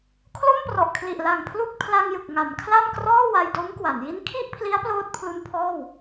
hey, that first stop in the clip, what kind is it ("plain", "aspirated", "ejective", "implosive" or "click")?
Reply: aspirated